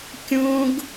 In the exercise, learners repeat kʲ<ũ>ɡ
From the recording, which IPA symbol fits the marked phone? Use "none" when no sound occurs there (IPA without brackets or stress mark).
ũ